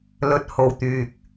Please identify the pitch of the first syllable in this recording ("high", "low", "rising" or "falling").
rising